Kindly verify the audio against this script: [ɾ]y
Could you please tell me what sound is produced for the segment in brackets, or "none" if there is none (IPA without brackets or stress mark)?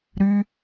ɾ